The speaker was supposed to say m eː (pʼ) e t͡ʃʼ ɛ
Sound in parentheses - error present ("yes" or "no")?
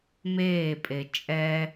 no